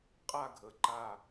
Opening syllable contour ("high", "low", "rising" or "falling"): falling